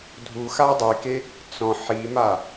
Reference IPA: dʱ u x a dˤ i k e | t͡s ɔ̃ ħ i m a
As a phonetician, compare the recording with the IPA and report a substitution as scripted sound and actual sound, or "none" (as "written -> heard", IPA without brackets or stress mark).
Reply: none